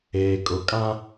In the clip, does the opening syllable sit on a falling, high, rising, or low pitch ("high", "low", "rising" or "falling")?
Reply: low